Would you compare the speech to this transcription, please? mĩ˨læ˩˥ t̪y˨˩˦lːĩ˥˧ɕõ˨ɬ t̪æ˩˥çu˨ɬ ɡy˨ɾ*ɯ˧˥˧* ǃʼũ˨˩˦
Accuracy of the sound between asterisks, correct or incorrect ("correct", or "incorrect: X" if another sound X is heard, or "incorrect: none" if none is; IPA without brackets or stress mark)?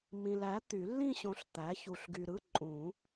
correct